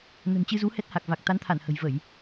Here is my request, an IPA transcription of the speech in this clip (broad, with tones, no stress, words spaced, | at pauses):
nə̤˨˩nt͡ɕɨ˧zu˨˦ hɛ˦˥t̚ha˨˩k̚ va˨˩k̚t̪a˨˦nt̪ʰa˧˩n hə̤˨˩jvə˧˩˨j